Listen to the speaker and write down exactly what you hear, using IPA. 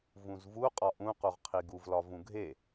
vũzvuqʼɒ ʔũquʁqʰi ɡuvlɒ vũɡʱe

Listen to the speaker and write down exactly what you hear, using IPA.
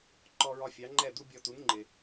ǃɔ˧ɹɒ˧ fʲɑ˩˥ŋ͡ǃɛ˥˩d̪u˥bʲɔ˧ tu˩˥nŋ͡ǃɪ˩

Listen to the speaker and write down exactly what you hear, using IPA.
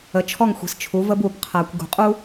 ə˨t͡ʃʰɔ˦˨ŋ xʷi̤˨st͡ʃʰu˨˦və˦b u˨b qʰæ˨kʷ ɡṳ˨qʼu˦

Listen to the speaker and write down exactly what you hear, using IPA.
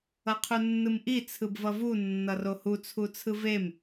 ʌqʰunːɯmʔi t͡sʰɯbvʌvu nːʌrohu t͡sʰut͡sʰɯvem

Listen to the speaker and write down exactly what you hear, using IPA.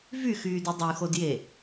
vyxyːdɯ dˤyxodje

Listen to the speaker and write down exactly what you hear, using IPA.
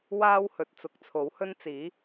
waː˥whɵ˨t̚ t͡sʊ˨˥k̚t͡sʰo˨˥whɵ˥nt͡siː˨˥

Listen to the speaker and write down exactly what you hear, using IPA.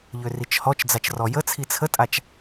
ʎørit͡ʃhɔt͡ʃd͡zat͡ʃ rɔjət͡sʰi t͡sʰətʼat͡ʃ

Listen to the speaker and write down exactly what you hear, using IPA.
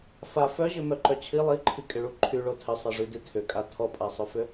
fa fœʑʏmœǃœ t͡ɕʰi lˠiǃʰikʼɪɭu ǃʰyɭo tʰɪsˤɛʐydi tʰʏkʼa tʰɔpʼasˤœfʏ

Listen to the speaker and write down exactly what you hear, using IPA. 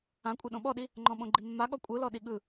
ãkʷʼe ɗõɓɔɗi | ŋ͡ǃɔ̃ɓõɡ͡ǃimːa ɠɔkʷʼɯlɔ ɗiɠɯ

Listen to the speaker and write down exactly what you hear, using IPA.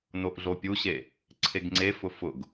noʔɮopʲuɕe | ǀʰeɡŋ͡ǀefʊ fʊɡ

